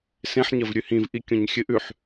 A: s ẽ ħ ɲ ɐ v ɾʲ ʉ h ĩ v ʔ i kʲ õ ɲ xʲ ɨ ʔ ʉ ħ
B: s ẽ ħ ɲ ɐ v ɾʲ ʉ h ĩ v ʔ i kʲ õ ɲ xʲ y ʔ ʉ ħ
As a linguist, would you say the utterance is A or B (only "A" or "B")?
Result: A